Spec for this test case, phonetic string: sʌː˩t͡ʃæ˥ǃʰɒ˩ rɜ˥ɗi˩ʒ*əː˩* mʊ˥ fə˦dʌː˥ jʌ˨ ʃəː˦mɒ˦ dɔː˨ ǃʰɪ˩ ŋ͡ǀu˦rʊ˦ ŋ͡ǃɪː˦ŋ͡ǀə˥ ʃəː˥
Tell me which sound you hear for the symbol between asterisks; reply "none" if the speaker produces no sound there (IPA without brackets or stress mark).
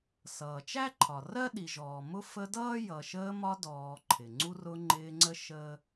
ɔː˩